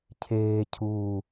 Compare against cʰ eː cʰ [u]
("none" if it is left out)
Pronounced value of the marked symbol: uː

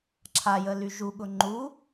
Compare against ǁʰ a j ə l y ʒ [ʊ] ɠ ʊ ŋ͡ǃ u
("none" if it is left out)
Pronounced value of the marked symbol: u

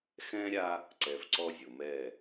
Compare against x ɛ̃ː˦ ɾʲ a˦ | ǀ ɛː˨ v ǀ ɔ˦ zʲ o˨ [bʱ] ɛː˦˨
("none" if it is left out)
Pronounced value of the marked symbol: m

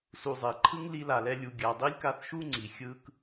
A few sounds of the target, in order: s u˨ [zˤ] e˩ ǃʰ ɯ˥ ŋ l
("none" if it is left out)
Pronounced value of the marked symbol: zˤ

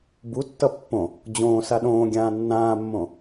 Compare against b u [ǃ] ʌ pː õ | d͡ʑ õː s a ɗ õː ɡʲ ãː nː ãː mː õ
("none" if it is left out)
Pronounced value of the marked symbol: tː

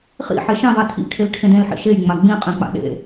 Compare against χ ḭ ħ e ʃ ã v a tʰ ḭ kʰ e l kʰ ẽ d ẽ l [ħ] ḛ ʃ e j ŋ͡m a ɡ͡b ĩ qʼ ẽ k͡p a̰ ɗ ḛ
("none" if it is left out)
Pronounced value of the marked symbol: ħ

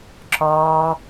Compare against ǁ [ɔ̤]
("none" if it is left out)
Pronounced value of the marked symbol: ɔ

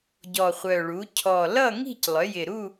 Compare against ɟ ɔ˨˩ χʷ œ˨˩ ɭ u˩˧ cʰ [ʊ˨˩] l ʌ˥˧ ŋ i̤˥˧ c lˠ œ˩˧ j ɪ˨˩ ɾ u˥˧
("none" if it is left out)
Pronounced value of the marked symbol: ɔ˨˩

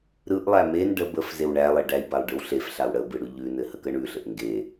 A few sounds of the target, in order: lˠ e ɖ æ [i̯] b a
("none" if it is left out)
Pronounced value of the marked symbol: i̯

